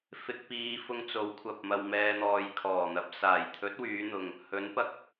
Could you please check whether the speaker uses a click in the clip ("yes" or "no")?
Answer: no